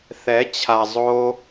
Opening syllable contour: rising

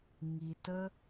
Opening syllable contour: low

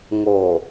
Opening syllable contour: low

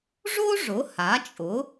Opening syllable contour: high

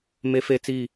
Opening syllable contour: high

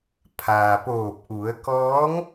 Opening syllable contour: low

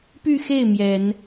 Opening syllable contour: falling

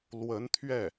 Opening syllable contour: rising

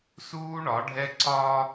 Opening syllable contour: high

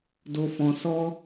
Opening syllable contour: low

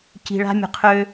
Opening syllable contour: low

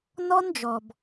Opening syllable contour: high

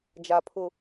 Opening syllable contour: high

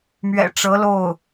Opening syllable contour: low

